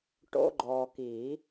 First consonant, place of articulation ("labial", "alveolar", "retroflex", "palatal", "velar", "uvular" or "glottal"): retroflex